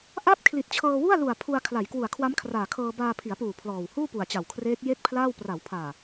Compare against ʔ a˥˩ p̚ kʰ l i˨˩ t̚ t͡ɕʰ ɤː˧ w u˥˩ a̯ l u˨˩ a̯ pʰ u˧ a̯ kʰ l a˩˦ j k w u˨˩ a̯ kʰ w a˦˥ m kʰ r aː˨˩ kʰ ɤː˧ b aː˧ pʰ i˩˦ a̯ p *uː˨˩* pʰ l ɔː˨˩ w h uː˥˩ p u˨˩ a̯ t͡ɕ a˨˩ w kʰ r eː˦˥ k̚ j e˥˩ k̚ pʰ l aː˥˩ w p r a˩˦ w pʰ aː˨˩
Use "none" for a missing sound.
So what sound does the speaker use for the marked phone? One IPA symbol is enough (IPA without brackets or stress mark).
uː˨˩